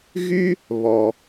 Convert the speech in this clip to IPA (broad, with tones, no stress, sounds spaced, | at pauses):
ɣ y˥ | β ɔ˩